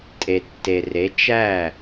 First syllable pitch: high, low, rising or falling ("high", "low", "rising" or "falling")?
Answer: low